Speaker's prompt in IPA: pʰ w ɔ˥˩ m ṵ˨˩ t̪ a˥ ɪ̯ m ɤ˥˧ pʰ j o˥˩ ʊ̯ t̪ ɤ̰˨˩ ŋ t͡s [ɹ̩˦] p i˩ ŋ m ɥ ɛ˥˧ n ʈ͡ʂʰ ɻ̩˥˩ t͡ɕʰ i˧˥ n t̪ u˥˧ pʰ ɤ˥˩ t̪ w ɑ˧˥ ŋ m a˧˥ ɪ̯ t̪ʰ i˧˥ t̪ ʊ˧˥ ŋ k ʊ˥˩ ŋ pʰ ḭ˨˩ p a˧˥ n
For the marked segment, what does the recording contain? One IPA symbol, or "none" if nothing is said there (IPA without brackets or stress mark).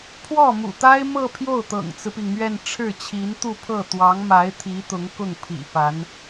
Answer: ɹ̩˦